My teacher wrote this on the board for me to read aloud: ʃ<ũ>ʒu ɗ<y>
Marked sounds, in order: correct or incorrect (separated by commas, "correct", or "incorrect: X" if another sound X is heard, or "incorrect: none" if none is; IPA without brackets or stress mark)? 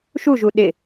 incorrect: u, incorrect: ɪ